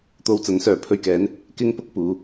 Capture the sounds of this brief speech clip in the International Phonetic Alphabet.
t̪ o˧ w t͡s ɐ˨˥ n s œː˨ pʰ ɵ˧ ɥ k ɛː˨˥ n | k ɪ˥ ŋ p ʊ˥ k̚ p uː˨˧

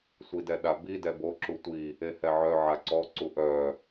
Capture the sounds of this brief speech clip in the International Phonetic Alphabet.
sʷ i d ɛ ɗ a b i d ɛ b o ǁ u tʷ i | e h ɛ ʕ œ ʕ a ǀ ɔ ǀ u ʔ œ

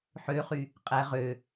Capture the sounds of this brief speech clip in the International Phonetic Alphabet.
ħ ø χ y | qʼ æ ʁ ø

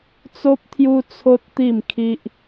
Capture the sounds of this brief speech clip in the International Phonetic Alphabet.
t͡s o˦ p̚ t̪ʰ j u˦ t͡sʰ o˦ t̚ t̪ i˥˧ m kʰ i˦ ʔ

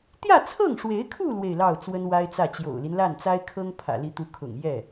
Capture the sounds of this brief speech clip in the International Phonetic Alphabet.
t̪ j ä˥˧ t͡sʰ ɤ˥˩ ŋ ʂ w e˧˥ ɪ̯ kʰ u˥˧ l w e˥˧ ɪ̯ l ɑ˥˩ ʊ̯ t͡s w ə˥ n w a˥ ɪ̯ t͡s ä˥˩ t͡ɕ j o̰˨˩ ʊ̯ l i˦ n l a˥˩ n t͡s a˥ ɪ̯ kʰ ɤ˥ ŋ pʰ ä̰˨˩ l i˧˥ t̪ u˧˥ kʰ ʊ̰˨˩ ŋ j ɛ˥˩

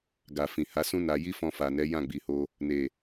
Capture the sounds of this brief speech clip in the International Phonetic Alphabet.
ɡ a˨ f ĩ˨ h a˨˦ s ũ˦ n a˧ j i˦ f ɔ̃˧ f a˨ n ɛ˨˦ j ã˦˨ ɡ͡b i˨ h o˧ | n e˨

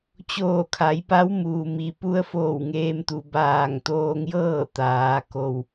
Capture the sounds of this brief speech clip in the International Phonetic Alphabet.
t͡ɕ oː˧˩ kʰ a˩˧ j p a˧˥ w m uː˩ m i˩ p u˧˥ ə̯ f oː˧˩ w ŋ eː˧ m t̪ u˩ b aː˧˩ ŋ t̪ oː˧ ŋ j ɤː˥˨ t̪ aː˩˧ k o˩ w

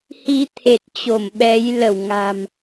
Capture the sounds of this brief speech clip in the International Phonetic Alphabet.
h i˧ t̪ʰ e˨˩ t̚ t͡ɕ o˧˩ m ɓ ɛ˨˦ j l ə˧˩ w ŋ a̤˨˩ m

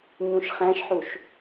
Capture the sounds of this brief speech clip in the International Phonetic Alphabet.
ɲ ũ ʃ χ æ̃ ʃ ħ u ʃ

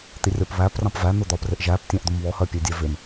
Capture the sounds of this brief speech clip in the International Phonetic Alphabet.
t̪ i rʲ ɒ p β æ p r ɑ̃ p v æ n̪ ʊ d̪ ɒ p r ɪ ʔ ʒ æ p tʲ ɑ̃ ʔ d̪ ʊ m β ɔ h ɜ pʲ æ dʲ æ v ɪ m

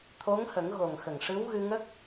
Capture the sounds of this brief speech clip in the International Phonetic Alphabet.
t̪ʰ o˧˥ ŋ h ə˨˩˦ ŋ ɣ o˨˩ ŋ x ə˨˩ ŋ ʂ ɨ˧˥ w ɣ ɨ˧ ŋ ə˦˥ k̚

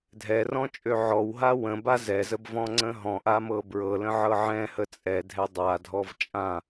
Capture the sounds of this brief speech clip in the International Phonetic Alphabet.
dʱ ɛ r ɔ̃ t͡ʃʼ ø ʕ ɔ w ɦ a w ə̃ b a z ɛ z ə b v ɔ̃ ŋ͡ǀ ə̃ ɦ ɔ̃ ʔ a m ɤ b ɹ ɤ l ə̃ ʕ ɤ ʕ ɛ̃ h ə t͡sʼ ɛ dʱ ɛ dˤ a dʱ ɔ v t͡ʃʼ ã

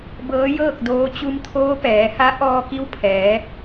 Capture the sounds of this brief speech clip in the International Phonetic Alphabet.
b ɤː˧˥ j ɤː˥˨ k̚ d oː˧˥ t͡ɕ u˧ m t̪ʰ oː˧˥ p ɛː˩˧ h a˧˥ ʔ ɔː˧ k i˧˥ w pʰ ɛː˩˧

